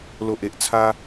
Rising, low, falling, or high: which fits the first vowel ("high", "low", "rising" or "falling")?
low